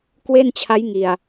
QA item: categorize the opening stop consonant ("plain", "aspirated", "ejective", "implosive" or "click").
plain